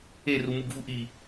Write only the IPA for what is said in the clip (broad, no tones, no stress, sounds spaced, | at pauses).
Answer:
e r u m u ɡ v u ʔ i